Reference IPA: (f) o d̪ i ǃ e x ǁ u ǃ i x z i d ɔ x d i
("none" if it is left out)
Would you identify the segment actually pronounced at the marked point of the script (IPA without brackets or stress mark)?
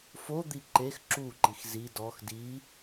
f